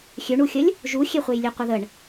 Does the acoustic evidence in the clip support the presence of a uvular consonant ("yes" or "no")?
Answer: yes